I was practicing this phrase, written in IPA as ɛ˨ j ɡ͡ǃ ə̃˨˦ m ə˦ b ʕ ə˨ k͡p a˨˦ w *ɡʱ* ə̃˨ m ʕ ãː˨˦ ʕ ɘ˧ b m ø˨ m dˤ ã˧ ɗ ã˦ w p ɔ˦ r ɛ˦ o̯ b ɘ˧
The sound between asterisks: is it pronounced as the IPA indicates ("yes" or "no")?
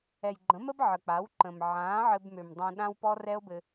no